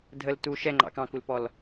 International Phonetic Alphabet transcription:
dʱ ə l t u ʃ ɛ ŋ͡ǃ ɑ̰ k ɑ̃ k u l p ɔ l

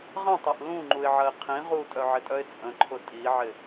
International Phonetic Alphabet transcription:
ʁ ɐ̃ tˤ ɐ ʔ l ũ ŋ͡ǃ u ɪ̯ ʕ ɐ ɪ̯ qʰ ĩ ʁ u tʼ œ ʕ ɪ tʼ œ ɪ̯ t͡sʼ ə̃ ǃʰ ʊ tʼ i ʕ ɪ

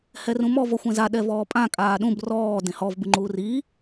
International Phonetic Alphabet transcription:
h ɛ r ũ m ɔ v ɔ xʷ ẽ z a ɗ ɛ v ɔː pʼ ã kʼ aː ɗ ũ b r ɔː d ẽ h ɔ v b ɨ ŋ͡ǃ uː r iː

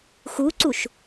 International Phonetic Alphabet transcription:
x u ǀ u ʃ

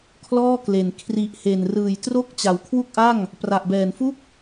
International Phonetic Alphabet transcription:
kʰ l ɔː˥˩ k l e˨˩ n kʰ r i˨˩ ʔ h e˨˩ n r ɯː˨˩ j t r o˦˥ k̚ t͡ɕ a˨˩ w kʰ w u˥˩ k̚ ʔ a˥˩ ŋ | p r a˨˩ ʔ b ɛː˨˩ n f u˥˩ k̚

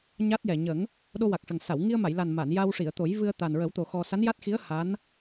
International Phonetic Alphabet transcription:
ɲ a˦˥ t̚ j ɛ˨˩ ɲ ə˨˩˦ ŋ | ɗ o˧ w a˨˩ k̚ ʂ ə˨˩ ŋ s a˨˩˨ w ŋ i˧ ə̯ m a˨˩˨ j l a˨˩ n m a˨˩˨ n j a˧ w ʂ i˨˩˨ ə̯ t̪ o˨˩˦ j v ɨ˧ ə̯ t̪ a˨˩ n ɹ ə˨˩˦ w t̪ o˨˩ x ɔ˧ s a˧˥ n j a˦˥ t̚ x i˧˥ ə̯ h a˧˥ n

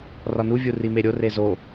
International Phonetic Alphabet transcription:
r ɒ n u vʲ u r i m e ɾʲ o r e z o

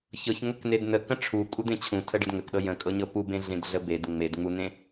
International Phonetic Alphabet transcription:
ç ɤ ç ŋ ə k n e d n ə k ə̃ ʈ͡ʂʰ u kʼ u d̪ ẽ t͡ɕʰ ũ tʰ ə ɖ ə d ŋ ə k ɗ ɤ j ə̃ kʼ ɤ ɲ ɤ p u b ẽ ɮ ẽ d ɮ ə b e d ŋ͡m e d ŋ͡m u n ẽ

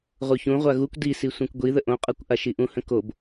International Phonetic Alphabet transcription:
ʁ u ç ũ ʁʷ a ɣ u kʷ d i s i sʷ ĩ kʷ ɡʷ i ð ə ʔ õ qʼ ɤ kʷ ʔ a ʃ i ʔ ũ h ə̃ k o b

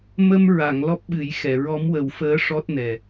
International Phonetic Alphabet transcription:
m ə˧ m ɹ a˨˩˨ ŋ l ɔ˦˥ p̚ ɓ ɨ˨˩˦ j x ɛ˨˩˨ ɹ ɔ˧˥ m w ə˨˩˦ w f əː˧˥ ʂ ɔ˦˥ t̚ n ɛ˨˩

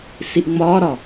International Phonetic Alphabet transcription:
s i ʔ ŋ͡m ɒː ɾ ɒ

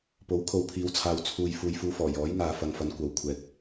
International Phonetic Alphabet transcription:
p o˨˥ w kʰ o˨˧ w pʰ iː˨˧ w t͡sʰ aː˨ w t͡sʰ uː˨ j f uː˨ j f uː˧ f ɔː˨˩ j ɔː˨˥ j ŋ aː˨ f ɐ˨ ŋ f ɐ˨˧ n kʷ ɐ˨˧ w kʷʰ ɛː˧ k̚

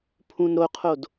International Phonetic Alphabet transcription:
pʰ ũ n ɾ o qʰ o d

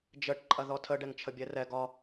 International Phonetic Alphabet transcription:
d͡ʒ ə ʈ ǃʼ ɐ ð ɔ tʰ ə ɖ ɛ ŋ t͡ʃʰ ə bʲ ɛ r ɛ ɡ ɒ

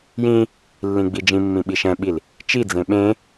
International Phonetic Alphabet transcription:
j ĩ | lː ĩ ɡ͡b i d͡ʒ ĩ mː ĩ ɓ i ʃ ɛ̃ ɓ i l | t͡ʃ i d͡z ẽ ɓ ẽ

